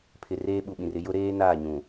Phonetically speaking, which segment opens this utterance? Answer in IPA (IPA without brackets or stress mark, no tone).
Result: pʰ